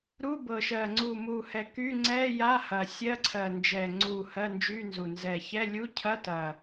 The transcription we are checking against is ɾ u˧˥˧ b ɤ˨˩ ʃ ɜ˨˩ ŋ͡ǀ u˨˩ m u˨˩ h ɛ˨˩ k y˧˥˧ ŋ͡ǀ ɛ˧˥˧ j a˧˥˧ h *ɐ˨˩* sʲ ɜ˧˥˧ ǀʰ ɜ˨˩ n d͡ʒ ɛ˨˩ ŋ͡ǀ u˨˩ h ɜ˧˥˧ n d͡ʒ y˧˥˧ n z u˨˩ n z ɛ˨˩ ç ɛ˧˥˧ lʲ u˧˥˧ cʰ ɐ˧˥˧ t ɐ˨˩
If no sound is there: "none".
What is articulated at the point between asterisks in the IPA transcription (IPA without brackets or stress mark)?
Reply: ɐ˨˩